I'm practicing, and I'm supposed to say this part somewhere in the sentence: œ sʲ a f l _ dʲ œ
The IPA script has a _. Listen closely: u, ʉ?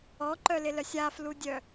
u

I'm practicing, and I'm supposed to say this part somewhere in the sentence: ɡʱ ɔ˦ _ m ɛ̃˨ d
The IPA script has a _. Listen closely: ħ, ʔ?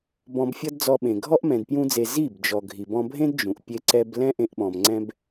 ʔ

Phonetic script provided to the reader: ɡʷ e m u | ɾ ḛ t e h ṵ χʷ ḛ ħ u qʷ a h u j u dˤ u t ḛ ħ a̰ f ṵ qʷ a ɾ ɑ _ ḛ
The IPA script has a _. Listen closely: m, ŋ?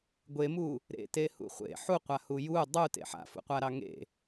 ŋ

